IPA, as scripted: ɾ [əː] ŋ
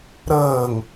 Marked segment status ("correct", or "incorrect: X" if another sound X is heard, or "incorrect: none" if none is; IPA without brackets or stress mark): correct